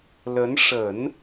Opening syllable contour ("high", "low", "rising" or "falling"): rising